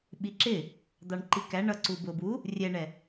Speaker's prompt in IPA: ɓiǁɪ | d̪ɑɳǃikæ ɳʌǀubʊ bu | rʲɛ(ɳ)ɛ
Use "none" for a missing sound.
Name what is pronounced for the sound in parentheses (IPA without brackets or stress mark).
ɳ